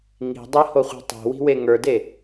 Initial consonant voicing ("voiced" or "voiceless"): voiced